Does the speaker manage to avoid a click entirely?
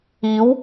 yes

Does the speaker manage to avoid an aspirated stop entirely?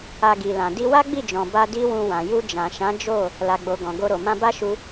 yes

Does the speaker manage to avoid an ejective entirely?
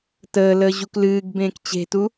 yes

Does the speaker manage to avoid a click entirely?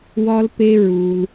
yes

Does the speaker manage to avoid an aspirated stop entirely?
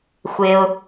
yes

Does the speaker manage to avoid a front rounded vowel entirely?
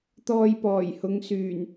no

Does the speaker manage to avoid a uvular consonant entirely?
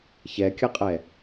no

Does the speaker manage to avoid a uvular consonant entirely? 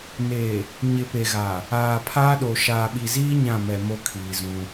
yes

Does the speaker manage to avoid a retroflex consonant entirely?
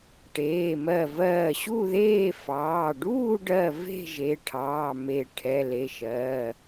no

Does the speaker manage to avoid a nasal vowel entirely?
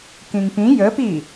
no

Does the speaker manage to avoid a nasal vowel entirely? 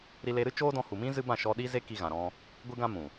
no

